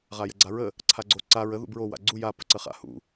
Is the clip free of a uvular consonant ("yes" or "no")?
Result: no